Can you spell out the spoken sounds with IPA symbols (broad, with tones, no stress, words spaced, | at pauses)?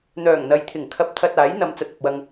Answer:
n̪œː˨˩ŋn̪ɐ˨jt̪ʰɪ˨˩ŋ kʰɐ˨p̚t̪ʰɐ˨t̚ aː˨˥jn̪ɐ˨˧m t͡sɐ˨t̚ɐ˨p̚wɐ˧ŋ